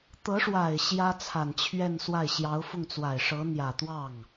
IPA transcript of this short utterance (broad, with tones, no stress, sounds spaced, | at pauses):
t̪ ɤ˧˥ ʂ w a˨˩ ɪ̯ ɕ j ä˥ t͡sʰ a˨˩ n t͡ɕʰ ɥ ɛ˥˧ n s w a˥˩ ɪ̯ ɕ j ɑ˧˥ ʊ̯ f ʊ˥˩ ŋ t͡s w a˨˩ ɪ̯ ʂ ɤ˧˥ n̪ j ä˨˩ t̪ w ɑ˥˩ ŋ